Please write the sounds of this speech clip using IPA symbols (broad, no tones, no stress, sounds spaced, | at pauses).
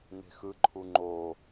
n e̤ x ɯ ǃʰ u ŋ͡ǃ o